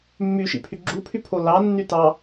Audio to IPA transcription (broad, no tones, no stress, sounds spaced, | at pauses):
mː y ʃ ḭ pʰ y ɡ͡ǁ u pʰ y pʰ o l ɑ nː y t ɑ